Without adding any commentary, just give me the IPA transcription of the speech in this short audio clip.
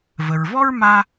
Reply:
v ə˩ ɹ v ɔ˥ ɹ m a˥

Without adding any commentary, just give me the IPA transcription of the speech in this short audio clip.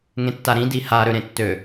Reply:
ŋ ẽ tː a ɾ ĩ d i h a ɾ ø ɾ ẽ tː ø

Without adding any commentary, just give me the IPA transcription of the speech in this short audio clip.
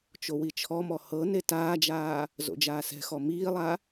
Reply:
t͡ʃ o w i t͡ʃʰ ɔ m ɔ h ɤ n e t aː d͡ʒ aː | z o̰ d͡ʒ aː s ɛ̤ x ɔ m iː lˠ a

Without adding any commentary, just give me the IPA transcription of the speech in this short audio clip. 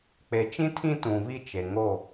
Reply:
k͡p e˨ t͡ʃ ĩ˦ tʰ ĩ˦ t ũ˨ β i˦ t͡ʃ e˨ ŋ o˦˨

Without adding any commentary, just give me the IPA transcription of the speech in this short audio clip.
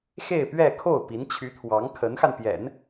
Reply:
x e˥˧ ɪ̯ p ɥ ɛ˥˧ kʰ o˥˩ ʊ̯ p i˧˥ n t͡ɕʰ y˧˥ t̪ʰ w ɑ˧˥ ŋ kʰ ə˧˥ n x a˧ n p j ɛ̰˨˩˦ n

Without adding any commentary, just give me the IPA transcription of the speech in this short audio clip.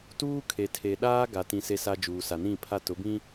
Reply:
t uː˦ kʰ e˨ tʰ e˨ ɗ aː˦ ɡ a˨ t ĩ˨ s e˦ s a˦ d͡ʒ uː˨ s a˨ n ĩ˦˨ pʰ a˦ t ʊ˨˦ b ĩ˦

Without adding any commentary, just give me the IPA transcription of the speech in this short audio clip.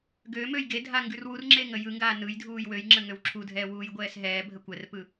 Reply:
ɡ ø m ø j ɡ e dʱ a ŋ ɡ ʉ r w u r ŋ͡ǁ e ŋ ə j ɯ ŋ ɡ aː n ɯ j dʱ uː j w ø j ŋ͡ǁ ə ŋ ø w ǁʰ u dʱ ɛː w uː j ɡʷ ɛː s ɦ ɛː bʱ ə kʷ ɛ r p ɯ

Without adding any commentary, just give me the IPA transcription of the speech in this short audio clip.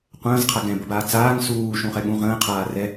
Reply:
qʷ ə̃ː z qʰ a ɡ ɛ̃ b ə b aː t͡s aː ŋ s uː ʃ ũ χ ɛ ɠ ũ ʁ ə̃ː qʰ aː r ɛ

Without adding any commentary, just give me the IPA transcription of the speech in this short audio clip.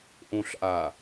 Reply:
ʔ õ ɬ ʔ a

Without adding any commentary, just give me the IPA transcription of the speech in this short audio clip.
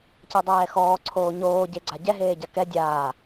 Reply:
c e dˤ ɛː x ɔː ǀʰ oː ɲ oː ɟ e ɡ͡ǀ a ɟ ɛ ɦ eː ɟ a k ɛ dʲ aː

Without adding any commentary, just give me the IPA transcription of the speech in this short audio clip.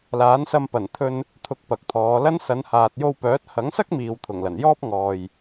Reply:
l aː˨˥ n s ɐ˧ m p ɐ˨˩ n t̪ʰ ɵ˧ n | t̪ʰ ʊ˨ k̚ p ɐ˨ k̚ t̪ʰ ɔː˨˧ l ɐ˥ n s ɐ˨˧ n h aː˨ t̚ j o˧ w p œː˨˥ t̚ h ɐ˨˥ ŋ s ɐ˥ k̚ m iː˨ w t̪ʰ ʊ˨˩ ŋ l ɐ˨˩ n j ɔː˥ p̚ ŋ ɔː˨ j

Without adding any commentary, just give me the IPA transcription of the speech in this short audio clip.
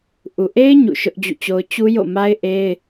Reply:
ʔ u˨ ʔ e˦ ɪ̯ ɲ ṵ˦˨ ʃ ʊ˦ ʔ d͡ʑ ṵ˦˨ t͡ɕ o˦ ʊ̯ t͡ɕ u˦ j o̰˦˨ m a˦ ɪ̯ ʔ e˦ ɪ̯

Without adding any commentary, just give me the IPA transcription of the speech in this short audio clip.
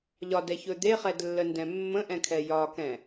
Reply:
ʎ ɒ d ɛ ç ɵ d̪ e χ ɛ d lː ə n d ɛ̃ mː ə̃ ʔ ɛ̃ kʰ ɛ j ɒ k ɛ̃

